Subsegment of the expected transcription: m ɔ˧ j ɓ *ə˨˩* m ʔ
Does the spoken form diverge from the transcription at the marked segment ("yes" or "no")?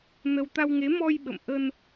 yes